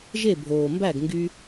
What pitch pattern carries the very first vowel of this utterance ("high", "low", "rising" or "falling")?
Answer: falling